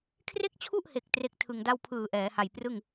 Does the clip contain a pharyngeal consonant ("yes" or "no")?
no